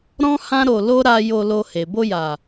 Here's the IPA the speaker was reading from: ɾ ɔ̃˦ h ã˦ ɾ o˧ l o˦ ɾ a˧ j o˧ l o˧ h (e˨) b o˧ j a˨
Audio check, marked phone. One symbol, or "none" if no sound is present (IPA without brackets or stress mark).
e˨